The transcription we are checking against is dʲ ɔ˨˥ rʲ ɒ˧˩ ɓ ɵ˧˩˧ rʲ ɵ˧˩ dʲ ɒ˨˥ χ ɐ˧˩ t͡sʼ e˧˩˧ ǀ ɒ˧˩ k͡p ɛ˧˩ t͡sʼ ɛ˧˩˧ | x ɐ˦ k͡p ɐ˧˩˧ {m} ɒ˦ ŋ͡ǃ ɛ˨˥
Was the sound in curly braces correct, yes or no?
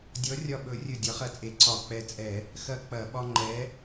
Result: no